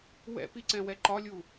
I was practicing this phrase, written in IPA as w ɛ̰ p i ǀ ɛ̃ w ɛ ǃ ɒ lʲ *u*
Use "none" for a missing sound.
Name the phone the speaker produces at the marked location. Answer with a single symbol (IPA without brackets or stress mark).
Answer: u